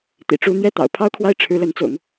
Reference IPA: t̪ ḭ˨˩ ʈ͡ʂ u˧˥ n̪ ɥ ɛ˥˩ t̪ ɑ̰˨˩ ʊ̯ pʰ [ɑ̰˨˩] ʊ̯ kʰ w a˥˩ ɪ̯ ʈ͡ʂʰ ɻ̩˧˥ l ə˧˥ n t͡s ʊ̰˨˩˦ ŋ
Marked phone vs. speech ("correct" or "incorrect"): incorrect